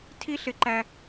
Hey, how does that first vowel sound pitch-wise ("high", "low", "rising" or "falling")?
high